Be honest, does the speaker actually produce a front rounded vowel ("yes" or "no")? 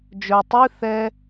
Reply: yes